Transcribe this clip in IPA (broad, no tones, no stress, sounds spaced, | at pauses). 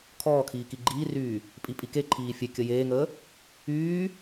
kʰ ɔː kʰ iː k i ɡ͡ǃ iː r yː | pʼ i pʼ i k e ǃʰ iː fʲ e kʲ ə j eː ŋ əː | yː